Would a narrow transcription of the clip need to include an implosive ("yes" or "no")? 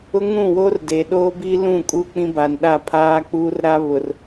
yes